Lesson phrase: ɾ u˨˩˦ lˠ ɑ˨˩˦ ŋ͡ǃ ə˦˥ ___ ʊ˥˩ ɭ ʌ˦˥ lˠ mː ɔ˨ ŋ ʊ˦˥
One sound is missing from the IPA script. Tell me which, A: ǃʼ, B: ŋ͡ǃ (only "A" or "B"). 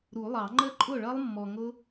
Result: A